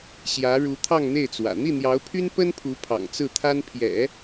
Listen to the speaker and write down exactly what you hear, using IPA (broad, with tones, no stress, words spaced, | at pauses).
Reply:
ɕjä˧˥ɻu˧˥ t̪ʰɑ˥˧ŋn̪e˥˩ɪ̯t͡swä̰˨˩ n̪i˥˩n̪jɑ˧˥ʊ̯pʰy˥n pə˥npʰu˧˥ pʰɑ̰˨˩ŋt͡sɹ̩˥˩t̪ʰa˥n pʰjɛ̰˨˩˦